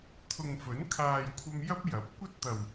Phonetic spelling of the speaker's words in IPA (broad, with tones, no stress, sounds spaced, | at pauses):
t̪ʰ ʊ˨ ŋ f ɵ˨˥ n kʰ aː˨ j kʷʰ ɐ˧ m j ɐ˥ p̚ j ɐ˨˥ p̚ kʷ ɐ˥ t̚ t̪ ɐ˨˩ w